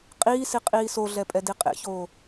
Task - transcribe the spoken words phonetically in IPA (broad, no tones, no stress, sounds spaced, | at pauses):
qʼ iː s i qʼ iː s o ɮ ɛ pʼ ɛ d i qʼ ḛ ç oː